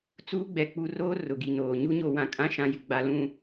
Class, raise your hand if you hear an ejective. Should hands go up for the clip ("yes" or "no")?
yes